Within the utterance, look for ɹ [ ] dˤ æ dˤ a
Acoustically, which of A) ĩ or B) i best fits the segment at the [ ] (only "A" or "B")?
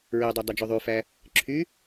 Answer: B